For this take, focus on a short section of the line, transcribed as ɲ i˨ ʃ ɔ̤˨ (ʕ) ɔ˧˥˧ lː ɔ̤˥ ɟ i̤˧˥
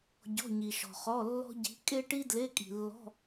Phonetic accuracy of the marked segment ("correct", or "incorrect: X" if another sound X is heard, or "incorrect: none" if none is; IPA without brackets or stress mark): incorrect: χ